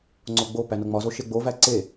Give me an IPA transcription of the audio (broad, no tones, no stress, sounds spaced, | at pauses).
ŋ͡ǀ o ɡ͡b o p æ n o ŋ͡m ɒ z o ʃ e ɡ͡b o v æ ǀ e